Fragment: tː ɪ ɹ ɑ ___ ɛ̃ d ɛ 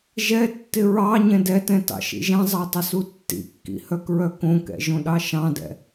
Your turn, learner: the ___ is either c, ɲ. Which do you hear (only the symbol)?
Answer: ɲ